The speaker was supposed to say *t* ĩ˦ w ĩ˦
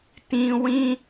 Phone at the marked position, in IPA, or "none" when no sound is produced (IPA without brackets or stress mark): t